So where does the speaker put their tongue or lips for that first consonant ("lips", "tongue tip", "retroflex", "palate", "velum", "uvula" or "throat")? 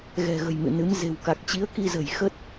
velum